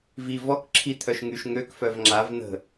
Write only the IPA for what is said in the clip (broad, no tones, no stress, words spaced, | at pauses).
vi vɔk ǁʰi t̪ʰœʃŋyʃ ŋøk fœvŋ͡ǁav n̪ə̤